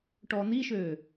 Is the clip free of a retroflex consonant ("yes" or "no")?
no